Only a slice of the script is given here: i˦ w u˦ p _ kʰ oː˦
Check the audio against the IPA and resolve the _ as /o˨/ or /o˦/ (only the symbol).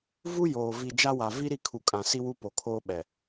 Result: o˨